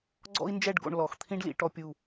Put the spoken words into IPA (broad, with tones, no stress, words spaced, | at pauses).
ɡ͡ǀɔ̰˥i̯nd͡ʒɛ˥˧ɖɡo̰˧ɳ lɔ˩˧x t̪ʰĩ˥ɖlḭ˩˧ ʈɔ˥pʲu˥˧